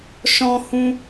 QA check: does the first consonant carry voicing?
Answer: no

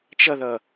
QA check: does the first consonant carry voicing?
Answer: no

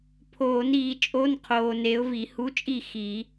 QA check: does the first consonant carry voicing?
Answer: no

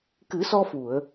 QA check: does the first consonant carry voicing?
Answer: no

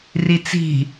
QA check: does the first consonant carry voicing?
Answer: yes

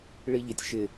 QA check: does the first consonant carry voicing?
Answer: yes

